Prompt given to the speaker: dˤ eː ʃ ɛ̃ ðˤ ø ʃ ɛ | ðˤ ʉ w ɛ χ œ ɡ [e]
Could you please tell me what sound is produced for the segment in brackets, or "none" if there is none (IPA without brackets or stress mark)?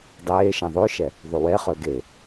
e